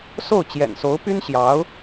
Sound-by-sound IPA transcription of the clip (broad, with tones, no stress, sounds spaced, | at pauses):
s o˥˩ ʊ̯ t͡ɕ j ɛ̰˨˩ n s o˧˥ ʊ̯ p y˥ n ɕ j ɑ˧˥ ʊ̯